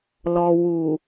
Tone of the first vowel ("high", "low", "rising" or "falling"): low